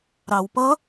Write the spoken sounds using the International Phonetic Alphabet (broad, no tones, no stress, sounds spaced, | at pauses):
ɾ ɑ w p ʌ